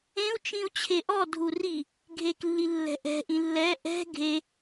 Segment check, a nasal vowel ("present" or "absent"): present